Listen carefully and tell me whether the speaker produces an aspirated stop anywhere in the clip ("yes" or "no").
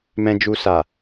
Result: no